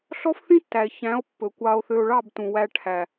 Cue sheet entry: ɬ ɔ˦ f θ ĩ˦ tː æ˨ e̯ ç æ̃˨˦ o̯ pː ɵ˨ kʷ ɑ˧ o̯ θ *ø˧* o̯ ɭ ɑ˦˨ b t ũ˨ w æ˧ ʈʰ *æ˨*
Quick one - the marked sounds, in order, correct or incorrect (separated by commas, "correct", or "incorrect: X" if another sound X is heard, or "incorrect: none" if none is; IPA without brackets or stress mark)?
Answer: correct, correct